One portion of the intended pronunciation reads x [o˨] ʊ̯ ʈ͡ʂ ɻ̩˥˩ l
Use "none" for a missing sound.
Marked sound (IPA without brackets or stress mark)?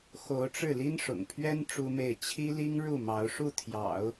o˧˥